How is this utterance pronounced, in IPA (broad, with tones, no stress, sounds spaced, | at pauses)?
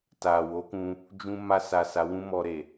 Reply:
t a˨ w o˨˦ k ũ˧ | d͡ʒ ũ˧ m a˧ s a˨ s a˨˦ w ũ˦ m ɔ˧ ɾ e˨